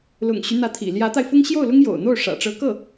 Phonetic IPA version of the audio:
lʊ̰˨˩ŋɕy˦ n̪ä˧˥t̪ʰḭ˨˩ ljä˧˥t̪a˧ɪ̯fʊ˥ŋ ɕjo˥˩ʊ̯lʊ˥ŋ jo̰˨˩ʊ̯n̪o˥˩ʊ̯ ʂä̰˨˩ʈ͡ʂɤ˧˥ kɤ˥˩

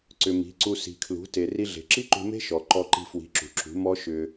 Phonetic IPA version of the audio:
ǀʏ˨mi̤˨˦ ǀu˧si̤˨kʰlṳ˨˦ te˨ri˧ɮe̤˨ ǁi˦ǃṳ˧me̤˦ ʃɔ˨ ǃɔ˧ǃi̤˧fwi̤˨˦ ǁṳ˨ǁṳ˨˦ mɔ˦ ʃʏ˧

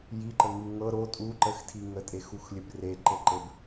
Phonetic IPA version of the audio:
jiǃəŋɨ ŋɤ ɾo tʼuǃəxtʰi ŋətʼexuxlʲɘb reǃɘǃɘb

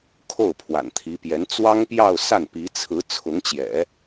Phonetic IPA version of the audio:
kʰo˥˩ʊ̯pʰwa̰˨˩nt̪ʰi˧˥pjɛ˧˥n t͡swɑ˥ŋpjɑ˥˧ʊ̯sa˥˩n pi˧˥t͡sʰɹ̩˧˥ t͡sʰʊ˧˥ŋt͡ɕjɛ̰˨˩˦

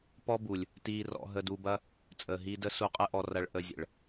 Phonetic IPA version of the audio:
pɔ˦bu˨lʲ | tiː˧rɔ̰˧ ɦə˧du˧bɐ˦ | t͡sʼəː˨ɦi˧də˦ su˧qʼə˦ʔɔ˧ rɐ˧ɭʔə˧zʲə̰˨ɭ

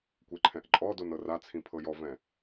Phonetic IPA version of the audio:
kʷeǃʰɛ̃ʔǃʼɔdon ɤrat͡sʰĩ pʰɤjɔvɛ̃

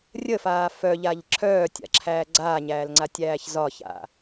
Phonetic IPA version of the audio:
rʲəfaː fœʎaʎ ǁʰœːtʲa̰ǁʰæː ɡ͡ǀaːɲæːlŋ͡ǀatʲæːç zɒça̰

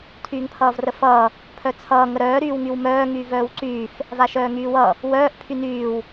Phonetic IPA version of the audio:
tʰyːŋpʰʌːvrəfʌː | pʰœt͡sʰʌː ŋəɾœː ɾyːwŋywmœː ŋyːvœːwǀyːf | vaʃœːŋyːwʌ | wœːʔ pʰynyːw

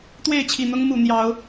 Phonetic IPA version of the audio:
t̪we˥˨ɪ̯t͡ɕʰi˨˩n̪ʊ˦ŋ mu˨˩ n̪jɑ˨˦ʊ̯

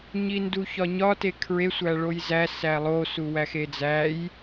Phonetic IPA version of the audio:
ɲinduçɒɲɒ tekʰɹe sʷæɭojzæ sælˠo suwæxed͡zæj

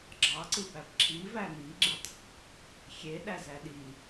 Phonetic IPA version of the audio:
ɡ͡ǁɑǀɯbæb ǁʰivæ miɡ͡ǁitˤ | xʲeɗæzæ ɗi

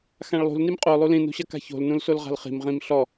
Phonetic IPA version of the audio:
xãɭlˠṳl nimqʼo lˠulĩ nṳɕɐka̤ço̤l nũlsolʁa̤lχi̤m ʁĩmɬɔ

